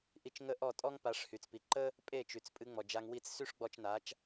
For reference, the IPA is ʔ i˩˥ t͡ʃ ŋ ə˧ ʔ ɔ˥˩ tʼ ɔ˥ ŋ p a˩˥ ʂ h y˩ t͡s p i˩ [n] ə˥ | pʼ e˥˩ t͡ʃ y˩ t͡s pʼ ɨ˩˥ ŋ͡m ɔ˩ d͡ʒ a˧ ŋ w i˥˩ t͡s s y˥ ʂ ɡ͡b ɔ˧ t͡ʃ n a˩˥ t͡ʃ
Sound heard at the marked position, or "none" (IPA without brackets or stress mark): ǃ